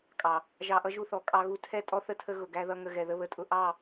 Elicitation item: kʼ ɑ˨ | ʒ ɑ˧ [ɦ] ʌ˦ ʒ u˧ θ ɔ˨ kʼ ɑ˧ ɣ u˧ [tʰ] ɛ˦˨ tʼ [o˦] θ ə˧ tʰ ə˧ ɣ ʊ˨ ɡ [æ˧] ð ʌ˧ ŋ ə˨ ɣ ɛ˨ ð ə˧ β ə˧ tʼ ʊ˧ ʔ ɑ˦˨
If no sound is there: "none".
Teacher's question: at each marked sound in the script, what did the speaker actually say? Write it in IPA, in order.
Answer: ʔ, tʰ, ɔ˦, æ˧

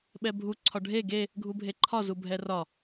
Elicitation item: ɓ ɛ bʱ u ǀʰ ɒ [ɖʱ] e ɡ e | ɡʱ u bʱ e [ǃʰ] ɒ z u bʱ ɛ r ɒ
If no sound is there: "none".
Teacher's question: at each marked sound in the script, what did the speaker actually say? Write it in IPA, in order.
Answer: ɖʱ, ǃʰ

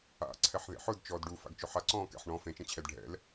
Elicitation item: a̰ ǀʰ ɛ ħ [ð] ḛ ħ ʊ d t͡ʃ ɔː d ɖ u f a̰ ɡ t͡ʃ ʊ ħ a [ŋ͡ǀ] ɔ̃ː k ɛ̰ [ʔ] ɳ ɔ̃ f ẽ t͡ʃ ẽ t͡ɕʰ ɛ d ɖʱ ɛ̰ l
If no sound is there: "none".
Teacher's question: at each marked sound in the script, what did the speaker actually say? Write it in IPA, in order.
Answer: ð, ǀ, ħ

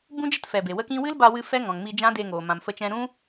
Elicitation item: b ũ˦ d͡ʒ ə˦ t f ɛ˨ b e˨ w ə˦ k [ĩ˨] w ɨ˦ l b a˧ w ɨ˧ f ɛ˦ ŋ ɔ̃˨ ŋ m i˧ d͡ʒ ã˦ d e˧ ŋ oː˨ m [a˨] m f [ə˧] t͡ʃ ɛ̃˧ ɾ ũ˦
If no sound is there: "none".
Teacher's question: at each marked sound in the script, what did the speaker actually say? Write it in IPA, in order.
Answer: ĩ˦, ã˨, ə˧

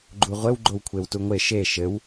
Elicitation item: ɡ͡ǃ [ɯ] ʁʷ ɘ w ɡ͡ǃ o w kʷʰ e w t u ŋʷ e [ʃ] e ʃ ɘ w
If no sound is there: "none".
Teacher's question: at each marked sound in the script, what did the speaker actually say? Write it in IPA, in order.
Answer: u, ʃ

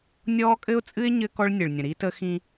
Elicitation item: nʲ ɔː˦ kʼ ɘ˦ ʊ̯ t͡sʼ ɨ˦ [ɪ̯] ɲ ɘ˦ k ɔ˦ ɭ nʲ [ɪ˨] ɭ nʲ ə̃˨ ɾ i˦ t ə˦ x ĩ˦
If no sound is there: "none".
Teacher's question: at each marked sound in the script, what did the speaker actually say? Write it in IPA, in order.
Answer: ɪ̯, ɨ˨

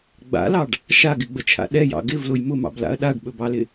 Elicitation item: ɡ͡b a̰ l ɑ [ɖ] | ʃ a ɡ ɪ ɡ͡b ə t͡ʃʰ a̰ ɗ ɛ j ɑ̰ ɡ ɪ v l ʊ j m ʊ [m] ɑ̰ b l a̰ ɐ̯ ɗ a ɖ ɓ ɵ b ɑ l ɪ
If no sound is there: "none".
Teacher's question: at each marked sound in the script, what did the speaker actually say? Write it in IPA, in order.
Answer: ɖ, m

